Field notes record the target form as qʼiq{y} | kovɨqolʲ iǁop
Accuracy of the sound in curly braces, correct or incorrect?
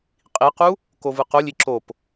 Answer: incorrect: u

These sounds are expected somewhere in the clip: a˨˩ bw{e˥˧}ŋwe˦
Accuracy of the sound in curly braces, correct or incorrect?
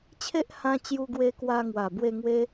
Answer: correct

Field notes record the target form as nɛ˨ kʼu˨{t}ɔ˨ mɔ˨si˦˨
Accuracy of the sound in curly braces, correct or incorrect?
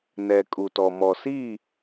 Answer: correct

